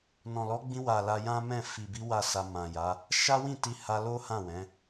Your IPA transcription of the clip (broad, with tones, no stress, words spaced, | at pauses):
nɔ̃˨lɔ˨˦ɡ͡bĩ˧wa˨ la˧jã˦mɛ̃˦˨ fi˨bi˨˦ wa˦˨sa˧ mã˨ja˨˦ | ʃa˦wĩ˦˨ ti˧ha˧lo˦ hã˦˨wɛ̃˨˦